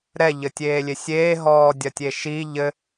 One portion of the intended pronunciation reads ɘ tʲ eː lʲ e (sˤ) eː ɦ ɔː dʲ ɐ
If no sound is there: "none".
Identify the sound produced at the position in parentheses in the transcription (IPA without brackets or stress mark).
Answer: sʲ